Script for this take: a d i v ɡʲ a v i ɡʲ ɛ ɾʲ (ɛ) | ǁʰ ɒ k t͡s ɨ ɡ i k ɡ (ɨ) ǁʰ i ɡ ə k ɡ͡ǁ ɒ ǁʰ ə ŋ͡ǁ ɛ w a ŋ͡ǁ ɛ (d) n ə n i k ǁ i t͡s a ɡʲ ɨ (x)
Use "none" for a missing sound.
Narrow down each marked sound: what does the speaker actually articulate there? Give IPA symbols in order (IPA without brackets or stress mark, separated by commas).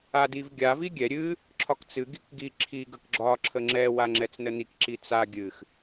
ɨ, i, t͡s, x